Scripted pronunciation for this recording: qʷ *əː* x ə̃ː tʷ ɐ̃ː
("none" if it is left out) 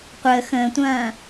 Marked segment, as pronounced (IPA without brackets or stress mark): əː